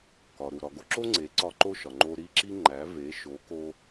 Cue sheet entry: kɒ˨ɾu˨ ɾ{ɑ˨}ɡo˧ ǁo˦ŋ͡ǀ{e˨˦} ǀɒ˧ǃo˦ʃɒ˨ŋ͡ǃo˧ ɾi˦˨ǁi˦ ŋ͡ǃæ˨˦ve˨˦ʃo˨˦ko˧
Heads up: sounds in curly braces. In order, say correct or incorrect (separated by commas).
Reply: incorrect, correct